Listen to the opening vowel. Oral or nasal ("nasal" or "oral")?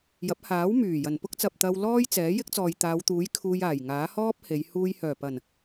oral